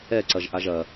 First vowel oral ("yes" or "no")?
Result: yes